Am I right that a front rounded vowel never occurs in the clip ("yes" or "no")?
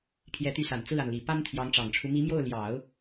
no